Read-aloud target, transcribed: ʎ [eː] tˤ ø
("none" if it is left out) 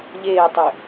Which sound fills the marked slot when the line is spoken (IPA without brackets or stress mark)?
eː